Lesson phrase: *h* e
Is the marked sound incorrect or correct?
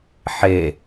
incorrect